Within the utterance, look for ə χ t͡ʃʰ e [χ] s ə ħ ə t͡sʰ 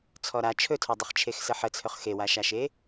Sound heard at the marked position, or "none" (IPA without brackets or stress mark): x